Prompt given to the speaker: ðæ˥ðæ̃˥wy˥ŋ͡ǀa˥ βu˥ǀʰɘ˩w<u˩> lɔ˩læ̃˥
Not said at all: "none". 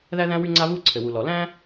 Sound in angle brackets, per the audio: u˩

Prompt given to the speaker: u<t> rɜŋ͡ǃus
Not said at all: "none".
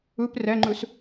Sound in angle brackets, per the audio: p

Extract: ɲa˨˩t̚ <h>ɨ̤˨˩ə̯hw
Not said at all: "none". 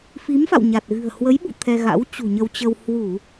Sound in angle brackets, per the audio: ɣ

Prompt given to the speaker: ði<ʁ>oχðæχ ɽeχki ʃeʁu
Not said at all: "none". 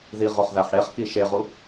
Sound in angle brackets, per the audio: ʁ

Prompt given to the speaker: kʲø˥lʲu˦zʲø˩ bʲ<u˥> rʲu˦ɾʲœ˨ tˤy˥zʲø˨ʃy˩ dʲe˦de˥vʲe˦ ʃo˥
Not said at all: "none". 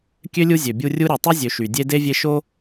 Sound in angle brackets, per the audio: u˥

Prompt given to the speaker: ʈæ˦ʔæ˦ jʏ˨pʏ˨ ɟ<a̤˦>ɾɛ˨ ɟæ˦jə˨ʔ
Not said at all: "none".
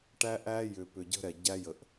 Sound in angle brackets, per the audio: ə̤˦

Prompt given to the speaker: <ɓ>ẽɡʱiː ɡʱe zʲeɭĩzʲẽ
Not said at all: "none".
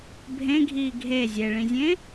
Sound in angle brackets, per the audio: bʱ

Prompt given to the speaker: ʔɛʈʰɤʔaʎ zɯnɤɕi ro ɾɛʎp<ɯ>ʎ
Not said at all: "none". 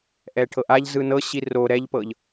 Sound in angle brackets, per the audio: ɤ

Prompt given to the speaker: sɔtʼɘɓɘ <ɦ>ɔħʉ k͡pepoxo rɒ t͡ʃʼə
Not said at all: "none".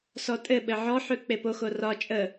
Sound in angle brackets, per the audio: ʕ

